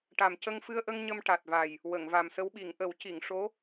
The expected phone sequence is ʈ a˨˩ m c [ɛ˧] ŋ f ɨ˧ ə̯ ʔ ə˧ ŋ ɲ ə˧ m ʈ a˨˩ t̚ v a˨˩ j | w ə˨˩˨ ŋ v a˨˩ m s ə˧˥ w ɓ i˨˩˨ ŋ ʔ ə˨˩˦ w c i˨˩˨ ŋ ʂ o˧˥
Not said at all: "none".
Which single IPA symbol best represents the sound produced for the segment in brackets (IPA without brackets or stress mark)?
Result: ə˧